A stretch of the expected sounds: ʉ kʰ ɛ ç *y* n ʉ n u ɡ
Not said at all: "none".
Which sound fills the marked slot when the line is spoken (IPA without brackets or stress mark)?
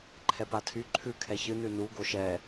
ɨ